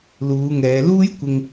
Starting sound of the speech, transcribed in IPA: l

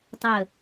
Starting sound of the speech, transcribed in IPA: tˤ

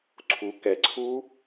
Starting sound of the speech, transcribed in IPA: ǀʰ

